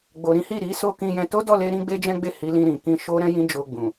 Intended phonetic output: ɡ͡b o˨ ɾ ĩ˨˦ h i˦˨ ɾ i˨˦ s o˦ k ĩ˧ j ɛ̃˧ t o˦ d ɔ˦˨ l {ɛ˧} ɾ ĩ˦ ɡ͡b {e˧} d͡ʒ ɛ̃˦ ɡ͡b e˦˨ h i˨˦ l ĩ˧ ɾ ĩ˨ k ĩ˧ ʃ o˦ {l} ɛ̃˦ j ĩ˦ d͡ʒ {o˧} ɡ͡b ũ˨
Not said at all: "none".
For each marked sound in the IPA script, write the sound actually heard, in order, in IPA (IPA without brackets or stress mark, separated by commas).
e˧, e˦, ɾ, o˧